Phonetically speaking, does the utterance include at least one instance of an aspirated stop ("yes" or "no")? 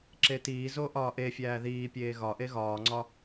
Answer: no